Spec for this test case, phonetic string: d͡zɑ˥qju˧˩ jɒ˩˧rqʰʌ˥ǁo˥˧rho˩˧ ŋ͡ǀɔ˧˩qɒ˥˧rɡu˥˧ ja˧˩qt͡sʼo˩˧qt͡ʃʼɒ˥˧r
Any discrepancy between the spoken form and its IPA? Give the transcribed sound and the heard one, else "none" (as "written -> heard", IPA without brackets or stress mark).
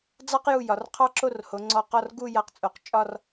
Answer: ʌ˥ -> ɑ˥